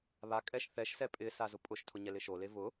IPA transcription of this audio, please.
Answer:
β a kʼ ɛ ʃ θ ɛ ʃ s ɛ pʼ ɪ s a z ʊ pʼ ʊ ʃ tʰ ʊ ɲ ɛ l ɪ ʃ o l e v ʊ

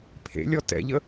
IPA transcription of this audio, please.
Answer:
pʰ ḛ lʲ ɔ t ɛ̰ ʎ ə

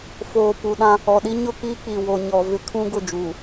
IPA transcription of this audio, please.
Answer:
f oː˨ p u˨ ɗ ã˦ | ɔ˨ ɗ i˦ ɲ ʊ˦ k iː˦ k͡p i˨ w o˨ ɲ ɔ˨ v ɪ˦ kʰ ũ˦ ɡ ʊ˦˨ d͡ʒ uː˨

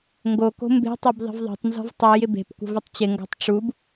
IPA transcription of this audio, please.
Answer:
ŋ ɡ o k o̤ m b e̤ tˤ ɘ b ðˤ ə̤ v ðˤ o̤ tˤ n z ɔ̤ v tˤ o j ɪ b e̤ p kʷ ə̤ v ɘ tˤ t͡ɕ ɪ ŋ ɡ ɔ̤ tˤ ʈ͡ʂ u b

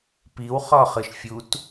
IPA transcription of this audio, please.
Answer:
p i w χ ɔ χ ɯ ʃ fʲ u t

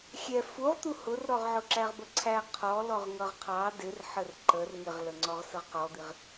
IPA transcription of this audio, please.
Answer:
xʲ ɛ f u ʁ t̪ u h ʊ r ɾ ɔ ʁ ʕ ʊ ǁ æ ʁ b ə ǀʰ æ qʰ ɔ l ɔ ʁ ŋ ʌ ʁ qʰ ɑ d ɪ r ħ ə r ǃ ə r ŋ ɪ ʁ l ə ŋ͡ǀ ɔ ʁ s ə ʁ q ɔ d̪ i ʁ

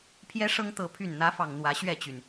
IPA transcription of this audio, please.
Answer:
pʰ j ɛ˦ ʂ ɤ˦ ŋ t̪ ɤ˨˦ pʰ y˨˩ n n̪ ä˨˦ f ɑ˨˩ ŋ n̪ w ä˨˦ ɕ ɥ ɛ˥˨ t͡ɕ y˩ n

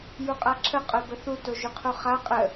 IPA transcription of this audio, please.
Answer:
j u qʼ a ǁʰ ə qʼ œ b ə θ u t o ʒ y qʰ u χ a qʼ ə

